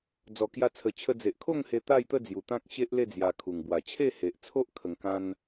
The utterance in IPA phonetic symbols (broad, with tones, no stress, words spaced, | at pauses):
d͡zɔ˨˩kja˧t͡sʰə˨˩t͡ɕʰə˧ d͡ze˨ʔkʰo˥˧ŋhe˧ t̪a˥˧jt̪ə˥˧d͡zju˨˩ t̪ã˦k̚ɕe˦ʔle˥˧ d͡zja˧kʰu˨˩ŋ bwa˨˩t͡ɕʰe˥˧he˨ʔt͡sʰo˦ʔ kʰə˧ŋkã˦n